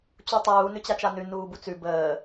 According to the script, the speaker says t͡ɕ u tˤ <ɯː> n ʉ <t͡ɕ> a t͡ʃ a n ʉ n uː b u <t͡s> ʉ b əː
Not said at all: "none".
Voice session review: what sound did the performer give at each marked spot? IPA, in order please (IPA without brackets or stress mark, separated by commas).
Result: uː, t͡ɕ, t͡s